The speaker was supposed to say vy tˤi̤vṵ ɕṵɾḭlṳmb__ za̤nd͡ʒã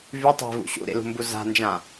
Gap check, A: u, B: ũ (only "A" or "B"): A